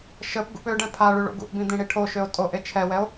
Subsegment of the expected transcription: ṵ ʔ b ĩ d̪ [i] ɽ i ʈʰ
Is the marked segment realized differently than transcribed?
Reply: yes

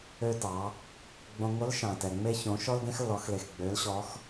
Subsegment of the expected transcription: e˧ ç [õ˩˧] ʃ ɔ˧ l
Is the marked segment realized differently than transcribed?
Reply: no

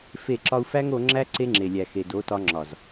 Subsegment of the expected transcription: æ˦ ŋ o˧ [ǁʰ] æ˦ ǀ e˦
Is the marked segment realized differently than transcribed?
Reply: yes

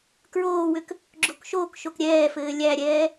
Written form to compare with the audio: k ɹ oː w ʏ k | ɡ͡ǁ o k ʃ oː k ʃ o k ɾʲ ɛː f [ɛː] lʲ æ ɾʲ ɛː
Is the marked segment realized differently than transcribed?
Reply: yes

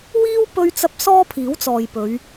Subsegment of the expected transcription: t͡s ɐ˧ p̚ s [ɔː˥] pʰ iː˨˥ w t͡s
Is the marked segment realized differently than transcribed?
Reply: no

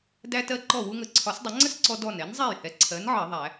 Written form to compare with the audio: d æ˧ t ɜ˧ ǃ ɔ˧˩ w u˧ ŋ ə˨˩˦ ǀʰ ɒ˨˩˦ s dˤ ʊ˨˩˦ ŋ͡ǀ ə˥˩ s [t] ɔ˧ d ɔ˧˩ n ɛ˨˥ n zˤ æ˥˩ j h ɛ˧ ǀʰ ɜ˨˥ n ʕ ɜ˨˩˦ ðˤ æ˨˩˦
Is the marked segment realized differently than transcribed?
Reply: yes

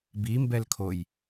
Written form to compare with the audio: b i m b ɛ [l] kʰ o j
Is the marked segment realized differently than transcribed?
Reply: no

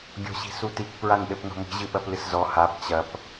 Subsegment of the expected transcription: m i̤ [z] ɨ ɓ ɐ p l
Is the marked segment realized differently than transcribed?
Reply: yes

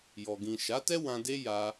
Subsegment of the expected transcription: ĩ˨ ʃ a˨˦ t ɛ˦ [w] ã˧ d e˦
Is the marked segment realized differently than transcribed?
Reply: no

